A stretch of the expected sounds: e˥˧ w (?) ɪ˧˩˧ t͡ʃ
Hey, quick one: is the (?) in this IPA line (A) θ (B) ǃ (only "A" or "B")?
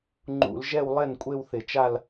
A